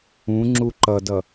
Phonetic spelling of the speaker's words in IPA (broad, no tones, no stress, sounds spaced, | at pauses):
ũ ŋ͡ǁ u ǃ ʌ d ʌ